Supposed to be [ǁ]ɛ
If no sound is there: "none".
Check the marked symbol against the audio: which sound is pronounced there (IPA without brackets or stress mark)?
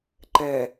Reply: ǃ